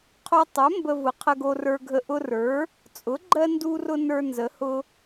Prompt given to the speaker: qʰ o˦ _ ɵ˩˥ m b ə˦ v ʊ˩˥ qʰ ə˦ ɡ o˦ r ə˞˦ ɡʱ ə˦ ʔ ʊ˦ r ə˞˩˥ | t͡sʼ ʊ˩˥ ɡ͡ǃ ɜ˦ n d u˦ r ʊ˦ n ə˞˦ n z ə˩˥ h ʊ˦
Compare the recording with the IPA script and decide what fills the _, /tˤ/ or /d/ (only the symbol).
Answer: tˤ